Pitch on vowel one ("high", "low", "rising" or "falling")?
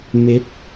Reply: rising